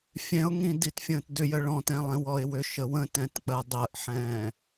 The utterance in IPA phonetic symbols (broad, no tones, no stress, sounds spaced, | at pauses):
fʲ ɛ̃ ʊ̯ ŋ ĩ d i t fʲ ə̃ː t d ʏ j ə ɭ ɔ̃ t ɛ̃ lˠ ɛ̃ w ɔ ɪ̯ w ʏ ʃ ə w ə̃ t ɛ̃ t k͡p ɜ dˤ ɜ ʔ ħ ɛ̃ː